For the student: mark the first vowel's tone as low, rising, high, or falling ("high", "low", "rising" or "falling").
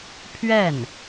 falling